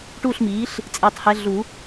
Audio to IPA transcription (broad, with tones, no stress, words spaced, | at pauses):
ʈuː˥˨ɬmiː˩˥ɬ | t͡sʼeː˧˥tˤhɛ˧˥ ɮu˨˩˦